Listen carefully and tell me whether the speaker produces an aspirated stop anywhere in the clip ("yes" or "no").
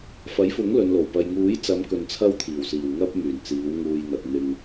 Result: yes